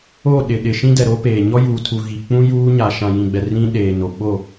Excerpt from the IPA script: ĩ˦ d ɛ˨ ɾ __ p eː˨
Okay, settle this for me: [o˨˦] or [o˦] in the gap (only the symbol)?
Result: o˦